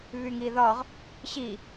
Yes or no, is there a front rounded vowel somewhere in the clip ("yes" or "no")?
yes